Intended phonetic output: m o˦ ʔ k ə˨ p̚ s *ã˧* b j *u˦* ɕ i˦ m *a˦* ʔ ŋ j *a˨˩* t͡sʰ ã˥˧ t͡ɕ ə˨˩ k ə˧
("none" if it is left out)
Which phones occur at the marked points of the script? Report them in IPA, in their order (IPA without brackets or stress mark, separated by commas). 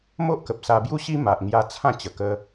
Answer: a˧, u˦, a˨, a˧